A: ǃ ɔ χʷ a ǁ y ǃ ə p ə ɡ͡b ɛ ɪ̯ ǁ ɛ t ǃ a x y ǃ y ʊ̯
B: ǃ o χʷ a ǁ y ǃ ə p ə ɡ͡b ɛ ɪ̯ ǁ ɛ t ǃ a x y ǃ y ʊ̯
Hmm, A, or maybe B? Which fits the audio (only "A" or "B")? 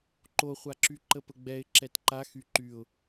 B